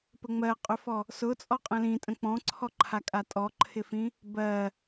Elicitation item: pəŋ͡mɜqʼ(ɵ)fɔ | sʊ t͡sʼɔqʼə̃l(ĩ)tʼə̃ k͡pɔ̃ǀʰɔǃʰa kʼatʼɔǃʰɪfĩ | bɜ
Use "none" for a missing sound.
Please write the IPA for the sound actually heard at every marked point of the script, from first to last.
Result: ɵ, ĩ

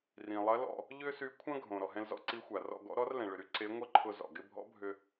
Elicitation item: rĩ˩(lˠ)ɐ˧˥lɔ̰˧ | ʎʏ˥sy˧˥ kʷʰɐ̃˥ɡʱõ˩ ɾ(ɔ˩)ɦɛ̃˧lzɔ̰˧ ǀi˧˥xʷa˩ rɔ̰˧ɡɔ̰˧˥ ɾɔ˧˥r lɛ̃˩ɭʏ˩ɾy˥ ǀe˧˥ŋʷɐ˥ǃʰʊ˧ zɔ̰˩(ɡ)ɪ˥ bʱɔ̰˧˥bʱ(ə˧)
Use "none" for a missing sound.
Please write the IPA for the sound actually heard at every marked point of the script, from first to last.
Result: lˠ, ɔ˩, ɡ, ʏ˧

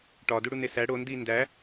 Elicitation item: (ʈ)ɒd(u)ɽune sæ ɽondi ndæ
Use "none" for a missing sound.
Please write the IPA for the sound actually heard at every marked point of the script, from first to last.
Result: ʈ, u

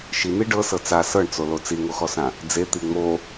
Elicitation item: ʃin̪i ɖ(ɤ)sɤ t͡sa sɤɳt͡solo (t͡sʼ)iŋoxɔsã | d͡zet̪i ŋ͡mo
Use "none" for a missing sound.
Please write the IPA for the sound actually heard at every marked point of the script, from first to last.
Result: ɤ, t͡s

